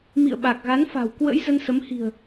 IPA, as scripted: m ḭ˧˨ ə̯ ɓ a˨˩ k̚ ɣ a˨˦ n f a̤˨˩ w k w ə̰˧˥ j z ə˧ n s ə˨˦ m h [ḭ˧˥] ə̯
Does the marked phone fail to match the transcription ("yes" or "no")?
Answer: yes